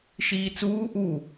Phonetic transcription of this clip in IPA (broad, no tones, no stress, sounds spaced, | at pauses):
ʃ iː t͡s uː ʔ u